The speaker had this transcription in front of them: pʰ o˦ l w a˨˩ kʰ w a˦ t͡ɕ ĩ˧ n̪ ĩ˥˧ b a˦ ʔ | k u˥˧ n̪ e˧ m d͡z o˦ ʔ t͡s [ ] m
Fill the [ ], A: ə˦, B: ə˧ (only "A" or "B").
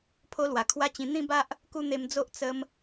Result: A